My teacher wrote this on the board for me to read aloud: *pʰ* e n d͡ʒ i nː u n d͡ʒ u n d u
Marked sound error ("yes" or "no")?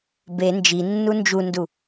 yes